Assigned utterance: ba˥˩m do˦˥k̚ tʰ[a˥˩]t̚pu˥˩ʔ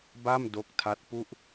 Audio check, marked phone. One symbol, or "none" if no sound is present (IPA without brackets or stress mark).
a˦˥